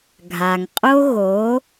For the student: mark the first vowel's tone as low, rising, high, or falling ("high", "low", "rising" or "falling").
low